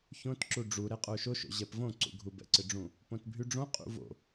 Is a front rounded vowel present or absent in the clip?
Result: present